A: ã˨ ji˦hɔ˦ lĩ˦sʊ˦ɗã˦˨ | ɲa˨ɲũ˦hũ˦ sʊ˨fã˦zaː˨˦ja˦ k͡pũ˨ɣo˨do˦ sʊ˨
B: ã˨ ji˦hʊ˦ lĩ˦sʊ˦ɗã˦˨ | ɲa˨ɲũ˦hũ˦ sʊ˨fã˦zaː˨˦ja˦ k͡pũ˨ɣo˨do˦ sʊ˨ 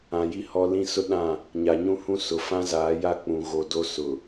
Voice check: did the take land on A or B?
A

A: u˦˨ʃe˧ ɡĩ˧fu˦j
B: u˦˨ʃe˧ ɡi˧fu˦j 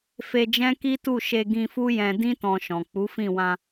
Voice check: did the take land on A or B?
A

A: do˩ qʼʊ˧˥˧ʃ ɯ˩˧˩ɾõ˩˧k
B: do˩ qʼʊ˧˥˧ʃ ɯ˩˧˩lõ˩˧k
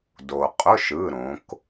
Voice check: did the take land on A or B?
A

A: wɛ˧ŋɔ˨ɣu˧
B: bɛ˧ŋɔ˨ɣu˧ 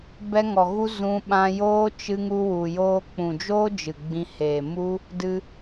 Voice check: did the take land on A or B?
B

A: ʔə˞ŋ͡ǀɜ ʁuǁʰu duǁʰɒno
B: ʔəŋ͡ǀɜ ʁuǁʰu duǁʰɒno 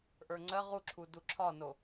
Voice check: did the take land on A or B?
A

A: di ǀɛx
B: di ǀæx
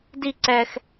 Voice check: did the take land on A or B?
A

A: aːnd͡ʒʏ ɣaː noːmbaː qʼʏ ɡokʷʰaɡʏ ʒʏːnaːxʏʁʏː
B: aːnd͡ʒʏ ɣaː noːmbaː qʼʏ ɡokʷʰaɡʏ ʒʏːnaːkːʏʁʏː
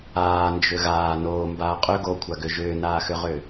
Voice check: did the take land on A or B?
A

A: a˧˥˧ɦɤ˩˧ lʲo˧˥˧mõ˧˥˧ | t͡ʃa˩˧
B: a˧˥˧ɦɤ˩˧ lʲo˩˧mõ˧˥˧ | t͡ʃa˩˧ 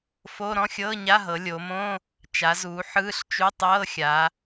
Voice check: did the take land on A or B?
B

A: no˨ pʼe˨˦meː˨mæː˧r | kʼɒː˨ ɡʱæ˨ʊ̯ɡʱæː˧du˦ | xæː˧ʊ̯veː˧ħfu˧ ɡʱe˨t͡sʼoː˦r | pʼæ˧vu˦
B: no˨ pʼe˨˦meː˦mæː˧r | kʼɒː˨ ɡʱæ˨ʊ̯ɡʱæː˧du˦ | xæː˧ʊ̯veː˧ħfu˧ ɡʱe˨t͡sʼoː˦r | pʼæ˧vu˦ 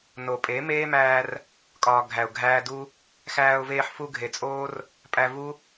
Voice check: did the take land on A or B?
B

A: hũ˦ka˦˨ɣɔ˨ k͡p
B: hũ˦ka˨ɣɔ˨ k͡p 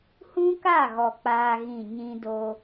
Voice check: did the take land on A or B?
A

